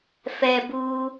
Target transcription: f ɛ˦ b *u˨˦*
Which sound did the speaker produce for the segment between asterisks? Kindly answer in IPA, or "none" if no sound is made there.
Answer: u˦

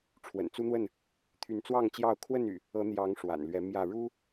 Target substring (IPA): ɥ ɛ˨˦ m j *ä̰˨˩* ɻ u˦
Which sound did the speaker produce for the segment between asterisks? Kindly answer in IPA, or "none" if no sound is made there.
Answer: ä˥˨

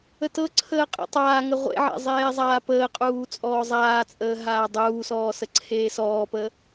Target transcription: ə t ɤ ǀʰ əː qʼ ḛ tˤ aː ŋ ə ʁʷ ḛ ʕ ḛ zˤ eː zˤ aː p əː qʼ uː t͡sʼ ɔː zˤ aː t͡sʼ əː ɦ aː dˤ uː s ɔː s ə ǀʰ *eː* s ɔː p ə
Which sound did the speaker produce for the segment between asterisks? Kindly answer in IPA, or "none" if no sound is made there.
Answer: eː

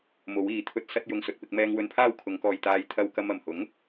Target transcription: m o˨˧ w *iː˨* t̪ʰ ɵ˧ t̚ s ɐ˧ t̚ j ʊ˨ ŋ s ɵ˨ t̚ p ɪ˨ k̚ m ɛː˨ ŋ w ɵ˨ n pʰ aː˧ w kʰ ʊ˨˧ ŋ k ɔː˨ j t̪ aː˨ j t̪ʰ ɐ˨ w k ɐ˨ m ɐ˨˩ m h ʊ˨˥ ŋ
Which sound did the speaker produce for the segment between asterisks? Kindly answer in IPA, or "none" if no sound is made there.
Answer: iː˨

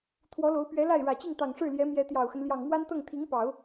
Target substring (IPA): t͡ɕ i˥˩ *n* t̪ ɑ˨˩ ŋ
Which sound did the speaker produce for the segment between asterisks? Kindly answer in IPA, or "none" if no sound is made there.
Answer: ŋ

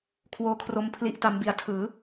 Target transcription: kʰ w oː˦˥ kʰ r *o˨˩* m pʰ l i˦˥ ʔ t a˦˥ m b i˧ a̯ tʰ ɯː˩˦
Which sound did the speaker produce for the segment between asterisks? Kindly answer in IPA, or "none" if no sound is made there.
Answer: o˧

